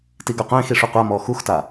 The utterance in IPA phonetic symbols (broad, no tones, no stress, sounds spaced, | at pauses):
t i ɡ œ qʷ ẽː x i ʂ u qʷ a m ɔː x u x t a